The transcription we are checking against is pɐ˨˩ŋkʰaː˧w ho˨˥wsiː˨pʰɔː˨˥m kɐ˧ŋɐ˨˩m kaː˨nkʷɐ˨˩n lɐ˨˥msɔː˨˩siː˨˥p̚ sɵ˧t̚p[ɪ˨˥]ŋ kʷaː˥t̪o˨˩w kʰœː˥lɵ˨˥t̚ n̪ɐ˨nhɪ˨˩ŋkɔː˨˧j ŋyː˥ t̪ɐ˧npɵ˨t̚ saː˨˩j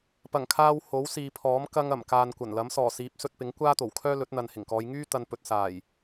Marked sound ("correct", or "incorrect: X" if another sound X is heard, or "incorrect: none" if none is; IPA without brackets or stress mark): correct